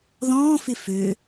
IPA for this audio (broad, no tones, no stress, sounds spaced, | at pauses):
ð ɔ̃ː f ɪ f ø